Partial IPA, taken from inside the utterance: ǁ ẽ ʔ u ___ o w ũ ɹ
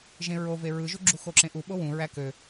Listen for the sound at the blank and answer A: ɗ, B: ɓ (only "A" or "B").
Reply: B